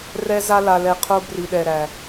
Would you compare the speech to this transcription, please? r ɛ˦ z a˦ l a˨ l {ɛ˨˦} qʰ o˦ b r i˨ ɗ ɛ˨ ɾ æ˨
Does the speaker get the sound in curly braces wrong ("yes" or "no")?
yes